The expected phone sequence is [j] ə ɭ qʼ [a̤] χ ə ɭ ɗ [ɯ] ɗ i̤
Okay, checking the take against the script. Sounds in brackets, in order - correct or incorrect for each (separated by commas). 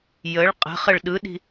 correct, incorrect, correct